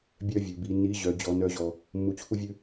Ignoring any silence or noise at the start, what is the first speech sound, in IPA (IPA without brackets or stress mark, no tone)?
bʲ